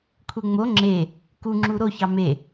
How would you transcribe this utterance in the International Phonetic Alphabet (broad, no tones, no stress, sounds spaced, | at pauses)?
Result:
kʷʰ e ŋ͡m o ŋ͡ǁ e | k u ŋ͡ǁ u ɾ o ç ɑ m e